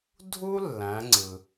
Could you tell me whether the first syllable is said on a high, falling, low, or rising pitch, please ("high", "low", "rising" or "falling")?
high